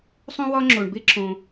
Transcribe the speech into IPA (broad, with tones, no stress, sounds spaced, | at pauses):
sˤ ũ˥ w ɒ˥ ŋ͡ǁ o˩ ɳ b e˥ ǁ õ˩